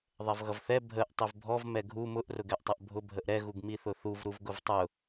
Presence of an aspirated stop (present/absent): absent